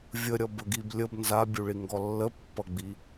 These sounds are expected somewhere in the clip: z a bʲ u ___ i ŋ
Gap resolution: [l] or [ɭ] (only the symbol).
ɭ